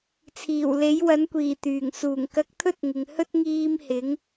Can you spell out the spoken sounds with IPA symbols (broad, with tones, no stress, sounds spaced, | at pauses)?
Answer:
t͡sʰ iː˨˩ w l e˨˥ j w ɐ˨˥ n kʷ iː˨˩ t̪ yː˨˩ ŋ s uː˨˩ ŋ k ɐ˧ k̚ t̪ʰ ɵ˥ t̚ ŋ ɪ˨ ŋ h ɵ˥ t̚ ŋ iː˧ m h ɪ˨˥ ŋ